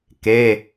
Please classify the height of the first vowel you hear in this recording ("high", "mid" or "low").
mid